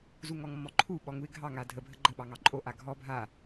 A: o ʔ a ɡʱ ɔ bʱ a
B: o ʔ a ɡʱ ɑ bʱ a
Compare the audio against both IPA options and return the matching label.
A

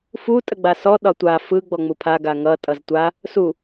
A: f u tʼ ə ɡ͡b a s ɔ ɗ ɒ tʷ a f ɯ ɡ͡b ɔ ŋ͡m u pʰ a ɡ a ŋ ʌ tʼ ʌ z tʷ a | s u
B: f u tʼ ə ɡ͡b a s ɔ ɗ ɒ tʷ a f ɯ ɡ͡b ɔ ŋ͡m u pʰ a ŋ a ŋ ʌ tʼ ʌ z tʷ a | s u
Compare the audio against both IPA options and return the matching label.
A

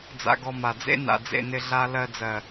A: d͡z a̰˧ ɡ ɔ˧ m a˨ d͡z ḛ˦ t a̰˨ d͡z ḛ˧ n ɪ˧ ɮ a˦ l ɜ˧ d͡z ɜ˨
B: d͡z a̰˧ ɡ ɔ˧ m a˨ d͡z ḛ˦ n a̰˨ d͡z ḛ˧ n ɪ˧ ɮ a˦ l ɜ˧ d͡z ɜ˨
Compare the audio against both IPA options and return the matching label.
B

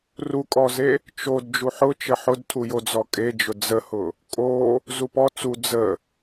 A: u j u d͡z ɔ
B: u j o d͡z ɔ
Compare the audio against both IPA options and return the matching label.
B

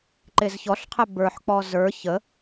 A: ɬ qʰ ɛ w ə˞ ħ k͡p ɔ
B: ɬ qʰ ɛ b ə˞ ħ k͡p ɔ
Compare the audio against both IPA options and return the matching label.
B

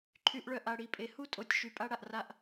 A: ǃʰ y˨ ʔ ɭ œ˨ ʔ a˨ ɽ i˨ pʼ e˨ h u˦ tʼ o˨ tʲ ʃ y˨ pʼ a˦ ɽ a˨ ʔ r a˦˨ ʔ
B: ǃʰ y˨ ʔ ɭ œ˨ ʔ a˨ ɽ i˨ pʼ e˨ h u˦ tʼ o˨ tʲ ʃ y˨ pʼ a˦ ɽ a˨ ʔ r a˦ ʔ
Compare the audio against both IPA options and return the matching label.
B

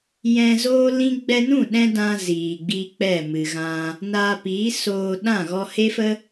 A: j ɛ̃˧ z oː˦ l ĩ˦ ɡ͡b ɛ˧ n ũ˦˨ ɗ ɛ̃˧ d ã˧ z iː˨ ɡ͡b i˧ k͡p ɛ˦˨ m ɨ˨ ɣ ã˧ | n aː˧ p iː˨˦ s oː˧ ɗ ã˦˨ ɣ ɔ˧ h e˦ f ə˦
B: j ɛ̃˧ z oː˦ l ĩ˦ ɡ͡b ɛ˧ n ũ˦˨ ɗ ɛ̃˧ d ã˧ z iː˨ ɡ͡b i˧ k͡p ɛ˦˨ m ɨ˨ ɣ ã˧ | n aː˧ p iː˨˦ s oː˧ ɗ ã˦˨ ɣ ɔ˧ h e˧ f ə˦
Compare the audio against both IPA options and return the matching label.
A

